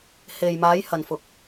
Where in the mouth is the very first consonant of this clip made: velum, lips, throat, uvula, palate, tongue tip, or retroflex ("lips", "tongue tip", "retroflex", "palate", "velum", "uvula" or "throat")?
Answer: throat